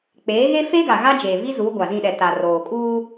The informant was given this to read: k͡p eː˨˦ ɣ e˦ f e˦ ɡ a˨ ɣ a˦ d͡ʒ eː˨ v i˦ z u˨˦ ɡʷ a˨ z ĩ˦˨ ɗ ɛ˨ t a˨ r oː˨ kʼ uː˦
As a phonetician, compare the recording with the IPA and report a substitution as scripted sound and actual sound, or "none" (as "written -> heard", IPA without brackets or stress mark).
none